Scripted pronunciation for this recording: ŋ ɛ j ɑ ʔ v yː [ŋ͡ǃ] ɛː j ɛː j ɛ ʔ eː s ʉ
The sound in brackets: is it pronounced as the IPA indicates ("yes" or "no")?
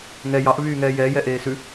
no